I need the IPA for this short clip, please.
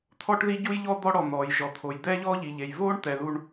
t̪ʰɔ˥ʈði˥ɟu˥jʎɔ˥ d̪ɔ˥ɽɔ˩ n̪ɔː˩j ʒɔ˩t̪ʰo˩j d̪ɛː˥ʎɔː˥ʎi˩ʎe˩j voː˥ɳt̪ɛ˩ ðu˥ɳ

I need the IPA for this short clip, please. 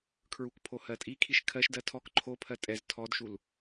kʰɹukpʰo hɜtʼikʰiʃ kʰɜʃdɜ tʰɔk ǃʰopʰɜ tʼɛz tʰɔdʃul

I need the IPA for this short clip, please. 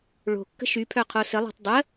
ɭo̤kːə̤ ʃypʰœqʰo səlˠo̤tˤ dˤə

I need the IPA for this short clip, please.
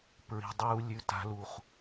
pɹi̤˨ dˤuː˨lʲʉ˨ ta̤˨lu˨χ

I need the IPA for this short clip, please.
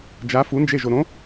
d͡ʒa fund͡ʒe ʒoɾõ

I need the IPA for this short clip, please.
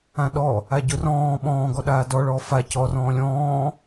ãɗɔ | aɟʊ rɔ̃ː ɓɔ̃ːɡɔɗaː dɔɭɔː fa cɔrɔ̃ː lʲɔ̃ː

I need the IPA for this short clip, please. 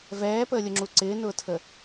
vɛːpəːlʲʊŋ͡ǁu ǀɪːnʊːtʰə

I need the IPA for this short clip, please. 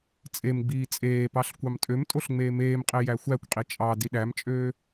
t͡sʼemɡ͡biː t͡sʼeːpɑɬ kʷɑmtʼømtʼoɬ ŋ͡meːmeːmqʼe jæxʷækʷqʼi t͡ʃʼɑ diɗæmt͡ʃʼøː

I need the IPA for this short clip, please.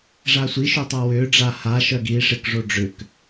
ʐasʷiʃu tˤawʏːɖ͡ʐa haʃœɡ i ʂɪkʐo ɖ͡ʐʏk

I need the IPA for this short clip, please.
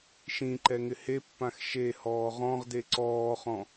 ʃĩ ǃɛŋɪhepːãx ʃe hɔːʁɔ̃ʁde ǀɔːχɔ̃

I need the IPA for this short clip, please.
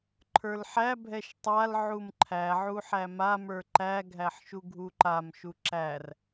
ǃʰə˞lħæbʱɛʃ tˤal ʕumǃʰæʕu ħæmamə˞ ǃæɡʱæħ ʃuɡʱuǃamʃu ǁær

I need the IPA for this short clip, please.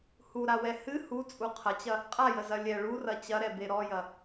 huɾawɛ hɨ hut͡sʼu qʰɐt͡ɕɐ | qʼajəzɐ lʲɛ ɭurɐ t͡ɕɐɾɛbe ɾɔjɐ

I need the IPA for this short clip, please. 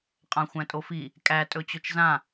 qʼãxʷæ̃tʼofi | kʼæ tʼɵt͡ɕɵt͡ʃzã

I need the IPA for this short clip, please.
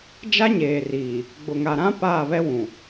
d͡ʒa˦ɲeː˨riː˨ | ɡ͡bʊ˨ŋa˨ɾã˦ paː˦˨βɛ˦ wũ˨

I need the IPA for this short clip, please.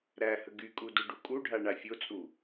ɾæhə ɡykʼu duɖukʼuɖʱa ɳafʲot͡sʼu

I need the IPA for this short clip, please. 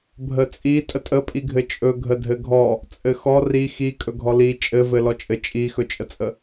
bʱət͡sʼi tʼətʼəpʼiɡʱɘ t͡ʃʼɵɡʱə dʱɘɡʱɔ | t͡sʼɘxɔ ri xikʼɵɡʱɔ li t͡ʃʼɘvɘ lɔt͡ʃʼɘ t͡ʃʼixɵt͡ʃʼət͡sʼə

